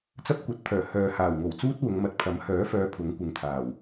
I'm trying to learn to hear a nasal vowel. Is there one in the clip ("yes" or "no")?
no